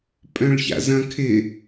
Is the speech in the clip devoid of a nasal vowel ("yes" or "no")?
no